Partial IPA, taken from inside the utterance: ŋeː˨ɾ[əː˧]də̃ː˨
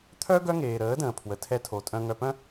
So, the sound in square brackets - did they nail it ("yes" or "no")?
no